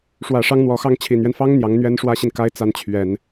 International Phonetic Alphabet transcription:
ʂ w ä˨˩ ʂ ɑ˧˥ ŋ n̪ w ɔ˨˩ x ɑ˥˩ ŋ t͡ɕʰ i˨˩ n ɥ ɛ˦ n f ɑ˥ ŋ n̪ j ɑ˧˥ ŋ n̪ ɥ ɛ˥ n ʂ w ä˥ ɕ i˨ n k a˥ ɪ̯ t͡s a˥˩ n t͡ɕʰ ɥ ɛ˨˩˦ n

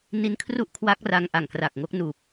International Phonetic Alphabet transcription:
n i˦˥ n kʰ r u˥˩ ʔ kʰ w a˦˥ k̚ r a˧ ŋ ʔ a˨˩ ŋ k r aː˨˩ k̚ ŋ o˦˥ k̚ n uː˨˩ p̚

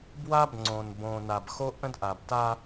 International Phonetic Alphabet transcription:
b w a˦ b ŋ͡ǀ õ˨ n b õ˨ n a˨ b x o˦ ʔ ə̃˦ d ʔ a˨ b t a˦

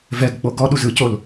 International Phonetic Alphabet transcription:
v ɛ ɡ k͡p o ɡ ɔ ɗ u z ɯ c o l

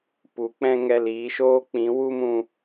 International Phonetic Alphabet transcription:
p u˨˦ k͡p ɛ̃˦ ŋ ɛ˧ l iː˨˦ ʃ oː˦ k͡p ĩ˨˦ w u˦ m ũ˧

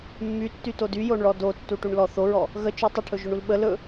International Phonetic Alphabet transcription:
mː y tː y t o d y j o ɳ ɭ ɔ d o tː u ʈ u ɳ l ɔ θ o ɹ ɔ | ɣ ə t͡ʃ y tˤ ə ʈʰ ɵ ʒ ɵ ɳ u l ɓ ə l ɵ

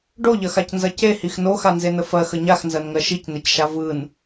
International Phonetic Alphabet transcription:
ɖ o ʎ ɐ x a c n z ɐ c e h i x n o x a n z e n ə f ɜ x ə ɲ a x n z ɜ n ŋ ɜ ʃ i c n e c ʃ a v ɯ n

